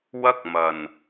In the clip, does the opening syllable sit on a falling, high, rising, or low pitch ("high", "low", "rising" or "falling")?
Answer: high